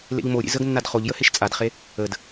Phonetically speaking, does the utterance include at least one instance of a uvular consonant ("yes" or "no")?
yes